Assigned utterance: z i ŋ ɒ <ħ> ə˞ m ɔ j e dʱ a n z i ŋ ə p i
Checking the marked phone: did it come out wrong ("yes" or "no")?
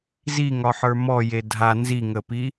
no